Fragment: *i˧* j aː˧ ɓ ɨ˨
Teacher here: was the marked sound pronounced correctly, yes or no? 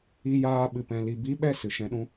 yes